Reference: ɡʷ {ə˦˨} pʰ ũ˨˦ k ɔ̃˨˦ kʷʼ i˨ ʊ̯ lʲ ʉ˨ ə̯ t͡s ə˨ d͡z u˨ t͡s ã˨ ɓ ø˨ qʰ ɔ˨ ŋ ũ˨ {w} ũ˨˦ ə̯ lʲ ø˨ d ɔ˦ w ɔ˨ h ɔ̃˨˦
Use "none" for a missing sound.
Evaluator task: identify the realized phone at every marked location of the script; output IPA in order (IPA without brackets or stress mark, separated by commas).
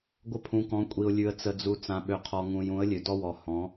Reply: ə˦, j